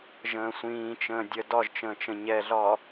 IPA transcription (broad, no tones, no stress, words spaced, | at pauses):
ʒə̃ːsʷĩːt͡ʃə̃ː dʲə dɒʒt͡ʃə̃ː t͡ʃə̃ɲɛɮɒː